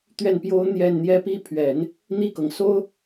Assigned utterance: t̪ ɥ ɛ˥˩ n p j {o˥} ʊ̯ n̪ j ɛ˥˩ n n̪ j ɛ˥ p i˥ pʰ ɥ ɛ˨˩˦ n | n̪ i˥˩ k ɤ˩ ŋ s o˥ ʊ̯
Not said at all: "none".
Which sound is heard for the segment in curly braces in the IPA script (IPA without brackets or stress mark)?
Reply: o˥